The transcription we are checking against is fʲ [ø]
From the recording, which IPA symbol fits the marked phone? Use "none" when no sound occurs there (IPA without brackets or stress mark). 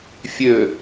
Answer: ø